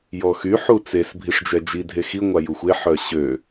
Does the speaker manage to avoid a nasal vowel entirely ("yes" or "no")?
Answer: yes